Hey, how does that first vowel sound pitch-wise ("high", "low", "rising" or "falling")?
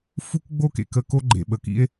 high